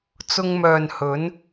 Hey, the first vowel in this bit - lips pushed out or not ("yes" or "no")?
yes